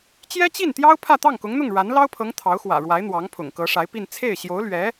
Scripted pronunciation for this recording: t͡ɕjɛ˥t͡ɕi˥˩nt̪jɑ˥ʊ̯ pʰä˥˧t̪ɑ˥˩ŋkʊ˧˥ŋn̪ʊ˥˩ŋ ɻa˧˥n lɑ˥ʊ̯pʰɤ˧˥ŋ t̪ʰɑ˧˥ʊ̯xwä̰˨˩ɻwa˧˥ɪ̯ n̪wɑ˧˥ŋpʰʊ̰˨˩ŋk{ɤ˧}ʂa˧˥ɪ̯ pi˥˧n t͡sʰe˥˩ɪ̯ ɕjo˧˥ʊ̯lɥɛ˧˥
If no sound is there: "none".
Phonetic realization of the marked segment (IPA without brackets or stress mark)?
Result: ɤ˧˥